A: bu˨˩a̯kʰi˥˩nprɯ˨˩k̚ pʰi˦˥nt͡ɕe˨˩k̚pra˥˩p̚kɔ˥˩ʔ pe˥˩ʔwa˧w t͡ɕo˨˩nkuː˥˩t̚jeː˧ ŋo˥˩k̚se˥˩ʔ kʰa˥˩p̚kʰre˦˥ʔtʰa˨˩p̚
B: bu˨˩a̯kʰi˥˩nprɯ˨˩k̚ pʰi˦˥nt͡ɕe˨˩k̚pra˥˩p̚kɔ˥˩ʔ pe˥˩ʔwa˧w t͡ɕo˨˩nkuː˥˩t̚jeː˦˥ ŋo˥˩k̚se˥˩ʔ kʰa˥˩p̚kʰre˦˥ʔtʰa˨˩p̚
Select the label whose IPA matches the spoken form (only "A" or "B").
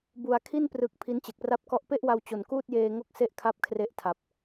A